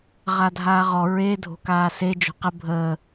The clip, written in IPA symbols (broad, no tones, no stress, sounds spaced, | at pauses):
ʁ a dʱ aː ʁ ɔ ɹ e dʱ o̤ k aː s e d͡ʒ o̤ q ə bʱ əː